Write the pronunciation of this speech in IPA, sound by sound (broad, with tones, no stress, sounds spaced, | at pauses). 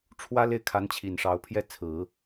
ʈ͡ʂʰ w ä˥ l e˥˩ ɪ̯ kʰ a˧˥ n t͡ɕʰ i˨˩ n ʂ ɑ˧˥ ʊ̯ pʰ j ɛ˥˩ t͡sʰ ɹ̩˨˩˦